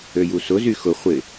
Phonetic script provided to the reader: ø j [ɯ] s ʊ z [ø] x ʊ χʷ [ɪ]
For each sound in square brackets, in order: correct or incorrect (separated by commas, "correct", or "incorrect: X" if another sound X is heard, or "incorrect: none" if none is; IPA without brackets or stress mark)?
incorrect: u, incorrect: y, correct